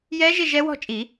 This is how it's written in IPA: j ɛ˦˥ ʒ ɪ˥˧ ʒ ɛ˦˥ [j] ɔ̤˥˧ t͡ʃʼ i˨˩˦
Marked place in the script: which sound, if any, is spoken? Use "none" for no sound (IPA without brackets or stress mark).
w